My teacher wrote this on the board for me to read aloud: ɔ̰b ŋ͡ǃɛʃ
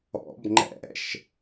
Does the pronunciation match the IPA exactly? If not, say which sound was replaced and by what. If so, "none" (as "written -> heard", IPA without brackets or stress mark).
ɛ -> ɛ̰